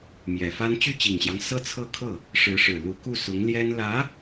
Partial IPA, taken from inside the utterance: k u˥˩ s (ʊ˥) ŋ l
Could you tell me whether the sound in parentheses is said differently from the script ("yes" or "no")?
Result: yes